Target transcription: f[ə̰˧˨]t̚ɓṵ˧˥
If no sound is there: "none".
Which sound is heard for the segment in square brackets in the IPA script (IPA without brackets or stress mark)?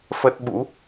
ə˦˥